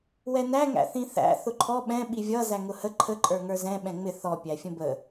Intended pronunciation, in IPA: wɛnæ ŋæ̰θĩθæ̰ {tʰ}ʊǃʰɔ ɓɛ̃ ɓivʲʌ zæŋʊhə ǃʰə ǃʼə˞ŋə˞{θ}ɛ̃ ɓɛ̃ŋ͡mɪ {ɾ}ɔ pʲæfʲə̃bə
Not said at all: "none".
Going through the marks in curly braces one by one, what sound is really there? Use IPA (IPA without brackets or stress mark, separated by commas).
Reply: θ, z, θ